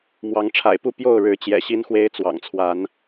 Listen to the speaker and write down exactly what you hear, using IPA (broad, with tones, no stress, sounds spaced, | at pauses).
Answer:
m w ɑ˨˦ ŋ ʈ͡ʂʰ a̰˨˩ ɪ̯ p u˥˨ p j o˥˨ ʊ̯ ɻ ɻ̩˨˦ t͡ɕ j ɛ̰˨˩ ɕ i˦ n x w e˦ ɪ̯ t͡s w ɑ̰˨˩ ŋ t͡sʰ w a˨˦ n